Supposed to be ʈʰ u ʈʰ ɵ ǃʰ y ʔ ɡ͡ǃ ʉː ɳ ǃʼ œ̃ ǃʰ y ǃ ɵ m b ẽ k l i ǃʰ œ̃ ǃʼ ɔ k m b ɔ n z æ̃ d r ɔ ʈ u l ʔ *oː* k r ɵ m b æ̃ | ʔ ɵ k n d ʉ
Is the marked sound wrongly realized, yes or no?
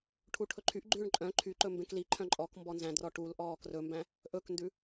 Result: yes